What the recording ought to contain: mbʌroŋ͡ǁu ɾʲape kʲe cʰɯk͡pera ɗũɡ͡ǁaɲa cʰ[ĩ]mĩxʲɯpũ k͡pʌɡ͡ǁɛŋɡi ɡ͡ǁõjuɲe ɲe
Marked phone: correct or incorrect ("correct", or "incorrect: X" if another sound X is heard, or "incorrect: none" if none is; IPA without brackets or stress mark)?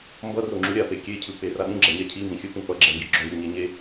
incorrect: i